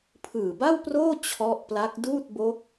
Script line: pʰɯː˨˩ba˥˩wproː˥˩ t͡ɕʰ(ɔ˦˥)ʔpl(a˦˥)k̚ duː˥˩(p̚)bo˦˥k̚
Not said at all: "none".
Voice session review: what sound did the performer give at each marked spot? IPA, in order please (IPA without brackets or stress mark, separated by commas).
ɔ˦˥, a˦˥, t̚